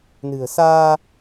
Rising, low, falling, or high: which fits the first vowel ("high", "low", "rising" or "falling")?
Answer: low